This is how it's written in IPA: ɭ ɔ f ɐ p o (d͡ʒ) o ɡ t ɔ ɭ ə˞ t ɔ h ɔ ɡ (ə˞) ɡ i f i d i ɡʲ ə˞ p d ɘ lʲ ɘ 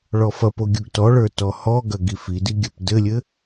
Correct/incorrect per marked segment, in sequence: incorrect: ɡʲ, incorrect: ɐ

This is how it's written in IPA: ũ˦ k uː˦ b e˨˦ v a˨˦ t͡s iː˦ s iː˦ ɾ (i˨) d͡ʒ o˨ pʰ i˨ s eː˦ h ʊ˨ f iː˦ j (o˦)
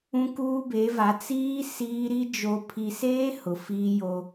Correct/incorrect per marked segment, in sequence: incorrect: i˦, correct

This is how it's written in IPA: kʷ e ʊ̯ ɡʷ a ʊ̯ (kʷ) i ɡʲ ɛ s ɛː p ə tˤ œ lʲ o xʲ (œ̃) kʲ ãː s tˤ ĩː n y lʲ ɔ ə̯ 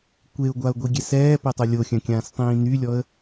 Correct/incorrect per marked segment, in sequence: incorrect: ɡʷ, correct

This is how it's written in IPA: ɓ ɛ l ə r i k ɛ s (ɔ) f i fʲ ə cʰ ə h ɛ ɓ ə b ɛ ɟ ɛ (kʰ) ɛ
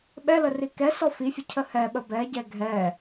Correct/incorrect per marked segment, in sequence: correct, incorrect: ɡʱ

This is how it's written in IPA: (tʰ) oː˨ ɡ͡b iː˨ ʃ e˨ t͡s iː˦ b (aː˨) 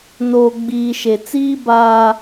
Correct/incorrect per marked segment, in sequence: incorrect: n, correct

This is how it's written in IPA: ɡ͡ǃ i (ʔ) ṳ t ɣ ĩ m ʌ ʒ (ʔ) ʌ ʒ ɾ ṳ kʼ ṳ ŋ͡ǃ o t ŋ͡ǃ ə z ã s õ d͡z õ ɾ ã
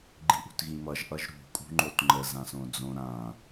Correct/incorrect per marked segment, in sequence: correct, correct

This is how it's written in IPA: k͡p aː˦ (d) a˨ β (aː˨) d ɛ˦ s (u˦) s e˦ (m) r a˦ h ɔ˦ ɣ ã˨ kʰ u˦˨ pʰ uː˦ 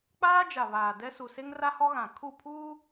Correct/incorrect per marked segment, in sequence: incorrect: d͡ʒ, correct, incorrect: u˨, incorrect: ŋ

